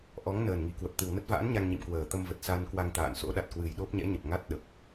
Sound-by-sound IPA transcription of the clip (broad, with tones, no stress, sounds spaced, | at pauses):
ʔ ɔ˨˦ ŋ n əː˨˩ n ŋ i˨˩ k w ə˨˩ p̚ t̪ ɨ˨˩ w n ə˦˥ t̚ v a̰ː˧˥ n ɲ a˧ ŋ ɲ ḭ˧˨ m k w əː˨˩ t̪ ə˧ m v ə˨˩ t̚ s a˧ n k w a˧ ŋ t̪ a̰ː˧˨ n s o̰˧˥ ɗ a˨˩ t̚ k w ɨ˨˩ j ɗ o˦˥ p̚ ɲ ɛ̰˧˥ ɲ ə˨˩ p̚ ŋ a˦˥ t̚ ɗ ə˨˩ p̚